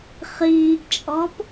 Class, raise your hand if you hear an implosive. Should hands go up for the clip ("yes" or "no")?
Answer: no